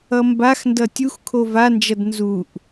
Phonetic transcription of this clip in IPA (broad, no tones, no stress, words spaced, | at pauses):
ʌmbaxndʌ tʲuxkʰo vand͡ʒʌd nzuʔ